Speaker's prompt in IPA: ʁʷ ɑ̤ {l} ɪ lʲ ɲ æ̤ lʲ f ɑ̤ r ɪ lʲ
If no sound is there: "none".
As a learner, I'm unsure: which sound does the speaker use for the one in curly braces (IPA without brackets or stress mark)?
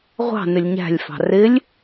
n